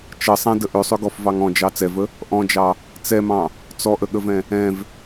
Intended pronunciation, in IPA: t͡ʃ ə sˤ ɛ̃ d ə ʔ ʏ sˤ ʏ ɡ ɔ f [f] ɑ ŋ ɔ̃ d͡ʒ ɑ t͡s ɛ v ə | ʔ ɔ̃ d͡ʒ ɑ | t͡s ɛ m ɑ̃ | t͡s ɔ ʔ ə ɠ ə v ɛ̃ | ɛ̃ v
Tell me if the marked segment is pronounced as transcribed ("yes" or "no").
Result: no